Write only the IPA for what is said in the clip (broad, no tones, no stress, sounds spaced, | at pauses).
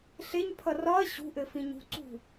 ɬ e ɲ pʰ ʌ r ɒ ɐ̯ ɕ ṳ ʔ ɘ f ĩ ɲ ṳ ǀ ṳ